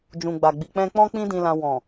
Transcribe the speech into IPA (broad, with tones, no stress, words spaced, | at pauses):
d͡ʒũ˨ɡ͡ba˨ ɡ͡bi˨k͡pɛ̃˧ k͡pɔ̃˦ k͡pĩ˦dĩ˧lã˧ wɔ̃˨